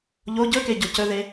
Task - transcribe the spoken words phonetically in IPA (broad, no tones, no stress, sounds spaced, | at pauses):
ʎ o ɟ ɵ k e ɟ o c ɵ ð e